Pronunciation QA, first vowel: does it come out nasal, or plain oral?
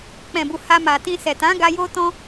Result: nasal